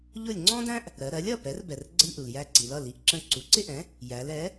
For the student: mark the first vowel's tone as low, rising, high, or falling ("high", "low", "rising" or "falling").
falling